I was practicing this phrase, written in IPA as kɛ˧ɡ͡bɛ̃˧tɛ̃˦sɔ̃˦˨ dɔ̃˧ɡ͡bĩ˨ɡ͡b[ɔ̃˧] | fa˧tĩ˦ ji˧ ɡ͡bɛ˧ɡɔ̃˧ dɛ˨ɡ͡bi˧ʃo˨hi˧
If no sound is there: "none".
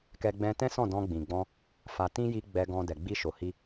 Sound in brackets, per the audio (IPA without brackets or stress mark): ɔ̃˧